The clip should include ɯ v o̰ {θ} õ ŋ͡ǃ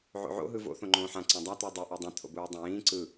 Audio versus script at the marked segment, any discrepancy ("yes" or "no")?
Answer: no